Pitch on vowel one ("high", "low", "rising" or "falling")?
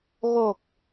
low